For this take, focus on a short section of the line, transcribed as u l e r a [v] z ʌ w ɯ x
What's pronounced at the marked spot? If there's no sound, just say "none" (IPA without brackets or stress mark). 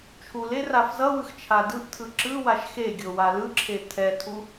f